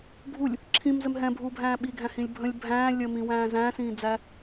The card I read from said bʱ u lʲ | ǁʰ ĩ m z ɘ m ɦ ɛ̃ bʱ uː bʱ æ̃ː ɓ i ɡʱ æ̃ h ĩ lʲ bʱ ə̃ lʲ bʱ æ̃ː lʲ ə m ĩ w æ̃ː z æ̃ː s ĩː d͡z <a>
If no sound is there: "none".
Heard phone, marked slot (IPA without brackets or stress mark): æ